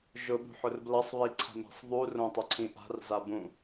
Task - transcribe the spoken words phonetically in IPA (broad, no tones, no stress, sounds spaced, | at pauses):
ʒ ʊ ɓ ṳ ħ ʊ r b l ʌ sˤ β i ǀʰ a̤ m i̤ sˤ ðˤ u r õ tˤ ʌ ǀʰ ĩ ʔ a̤ r z a b ũ